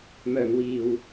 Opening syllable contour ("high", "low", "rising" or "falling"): low